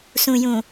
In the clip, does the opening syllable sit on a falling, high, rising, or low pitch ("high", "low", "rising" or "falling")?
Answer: low